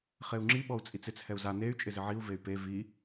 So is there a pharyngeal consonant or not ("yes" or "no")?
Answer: yes